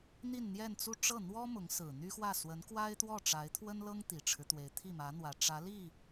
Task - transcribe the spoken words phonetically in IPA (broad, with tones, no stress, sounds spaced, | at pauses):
n̪ i˥˧ n n̪ j ɛ˥˧ n t͡s u˥˧ ʈ͡ʂ ɤ˥˩ n̪ w ɔ˥ m ʊ˧˥ ŋ s ɹ̩˨˩ n̪ y˥ x w ä˥˩ s w ə˧˥ n k w a˥ ɪ̯ t̪ w ɔ˥˩ ʈ͡ʂ a˧˥ ɪ̯ t̪ʰ w ə˥ n l ɤ˥ ŋ t̪ i˨˩ ʈ͡ʂʰ ɻ̩˦ t̪ w e˧˥ ɪ̯ t̪ʰ i˥˩ m ä˧˥ n̪ w ä˨˩ ʈ͡ʂ ä˧˥ l i˥˩